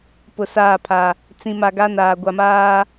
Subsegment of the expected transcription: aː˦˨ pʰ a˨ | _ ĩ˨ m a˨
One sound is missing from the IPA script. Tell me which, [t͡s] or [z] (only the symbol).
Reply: t͡s